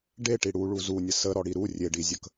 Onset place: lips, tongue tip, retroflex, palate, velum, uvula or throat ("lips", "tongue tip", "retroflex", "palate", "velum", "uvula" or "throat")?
retroflex